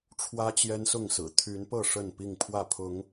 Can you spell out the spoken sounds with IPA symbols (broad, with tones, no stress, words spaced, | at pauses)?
ʈ͡ʂʰwä˦ t͡ɕjɛ˦nsʊ˥˨ŋsɹ̩˨˩ t̪ʰy˨˦npɤ˥˨ ʂə˥˨npi˥˨ŋpʰwä˥˨pʰʊ˨˦ŋ